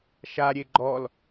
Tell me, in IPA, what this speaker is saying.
ʃ a ɾʲ e ɡ͡ǃ ɔ l

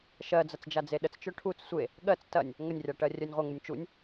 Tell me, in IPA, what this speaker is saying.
ʃ ɜ d͡z ɐ t͡s d͡ʒ a d͡z e ɗ ə t͡s t͡ʃ œ ʈʰ u t͡s sʷ e | ɠ ɜ t͡s t ɐ nʲ | ŋ ə nʲ rʲ a ʈ ɜ rʲ œ nʲ ʁʷ ɜ ŋ u nʲ t͡ʃ u nʲ

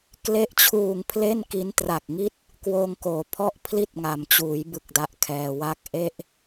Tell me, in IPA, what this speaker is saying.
k l e˦˥ ʔ t͡ɕʰ uː˨˩ ŋ pʰ l e˥˩ n k i˦˥ n t r a˨˩ k̚ ŋ i˥˩ t̚ | k w oː˧ ŋ k oː˩˦ pʰ ɔ˥˩ ʔ pʰ l i˥˩ t̚ ŋ a˩˦ m t͡ɕ uː˩˦ j b ɯ˦˥ k̚ d a˦˥ ʔ kʰ ɛː˧ w a˥˩ k̚ ʔ e˥˩ ʔ

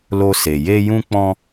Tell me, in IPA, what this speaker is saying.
l o˧ s e˨ j e˧ j ũ˧ k͡p ɔ̃˧

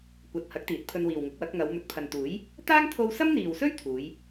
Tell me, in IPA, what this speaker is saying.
kʷ ɐ˨ t̚ h ɐ˨˥ k̚ t̪ iː˨˥ t̚ pʰ ɵ˧ n w iː˨ w ŋ ʊ˨˥ k̚ w ɐ˨˥ k̚ ŋ ɐ˨˧ w m ɵ˨ t̚ pʰ ɐ˨ n t̪ uː˨˥ j | t̪ aː˥ ŋ t̪ʰ o˧ w s ɐ˥ m n̪ iː˨ w s ɵ˥ ɥ t̪ʰ uː˨˧ j

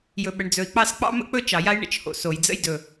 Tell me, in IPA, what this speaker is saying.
j ɵ˩ ɓ ə˩ ɳ d͡z ɵ˩ i̯ k͡p ɑ˥ s k͡p ɑ̰˥ m ə̰˥ k͡p ɵ˥ t͡ʃ ɑ˩ j a˥ j ɳ ə̰˩ t͡ʃ h o̰˩ s o˩ j d͡z ə̰˥ j d ɵ˩

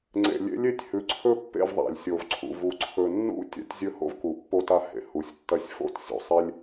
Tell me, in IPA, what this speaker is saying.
ŋ͡ǀ ḛ˨ lʲ ḛ˦ lʲ e˦ tʲ h ʉ˨ ǀʰ ɵ˦ pː ḛ˦˨ v ðˤ a̰˨ lʲ sʲ o˨ v ǀʰ ṵ˨ v u˨ ǀʰ ɵ˨ nː ṵ˦ tʲ a̰˦ tʲ zʲ ɵ˦ h o̰˦ v k u˨ pː o˦ t a˦ h ḛ˨ h u˨ sʲ tː ɐ˦ sʲ f o̰˦ t sʲ o̰˨ sˤ e˦ lʲ

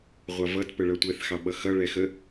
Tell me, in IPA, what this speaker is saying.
ʁʷ ɑ v ʌ t p ə ɭ ʌ tʷ ɛ θ x ɑ ɓ ʌ x ʌ ɭ ɛ x ə

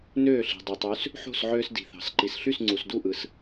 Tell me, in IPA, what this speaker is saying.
n øː˥˩ ɬ i̤˩ dˤ ɯ˩ tˤ y˩˥ s | ħ o̤˥˩ s ʕ øː˧ s d i̤˩ θ ɑ̤˩ s ǃ i˩ s ɬ y˥˩ s ŋ͡ǀ u˩ s d u˥˩ ʔ ɯ˩ s

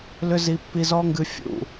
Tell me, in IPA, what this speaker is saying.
l ʏ˦ z i˧ pː i˧ z ɔ˦ ŋ ɡ ɨ˧ fʲ ṵ˨

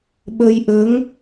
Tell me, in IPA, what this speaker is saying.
ɓ ə˧ j ʔ ə˧˥ ŋ

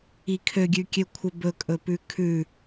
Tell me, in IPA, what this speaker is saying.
i kʰ ø ɡʲ ʉ kʲ ø kʷʰ ə b ɵ kʼ ɵ p ʉ kʰ ʉ

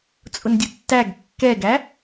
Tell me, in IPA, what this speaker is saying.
t͡sʼ ʊ n dʲ ʊ tː æ ɡ kː ɛ ɡ æ

